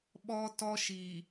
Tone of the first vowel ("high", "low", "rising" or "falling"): high